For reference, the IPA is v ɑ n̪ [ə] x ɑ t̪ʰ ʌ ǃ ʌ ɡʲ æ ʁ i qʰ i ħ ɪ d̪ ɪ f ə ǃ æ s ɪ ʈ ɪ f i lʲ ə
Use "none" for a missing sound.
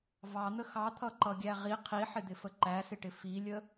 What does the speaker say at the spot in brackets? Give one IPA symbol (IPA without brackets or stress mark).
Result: ə